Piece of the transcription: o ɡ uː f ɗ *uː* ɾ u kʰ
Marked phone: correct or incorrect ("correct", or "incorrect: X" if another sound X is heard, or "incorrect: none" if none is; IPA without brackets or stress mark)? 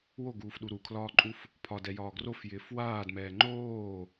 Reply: incorrect: u